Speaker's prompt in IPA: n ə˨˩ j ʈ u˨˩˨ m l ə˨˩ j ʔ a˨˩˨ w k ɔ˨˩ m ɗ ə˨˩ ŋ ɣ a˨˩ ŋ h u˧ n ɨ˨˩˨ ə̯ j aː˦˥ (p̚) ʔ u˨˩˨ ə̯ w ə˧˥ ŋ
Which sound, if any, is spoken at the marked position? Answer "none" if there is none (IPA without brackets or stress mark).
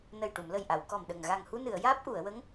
p̚